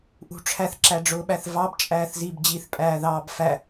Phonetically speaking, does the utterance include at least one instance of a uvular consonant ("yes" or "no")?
no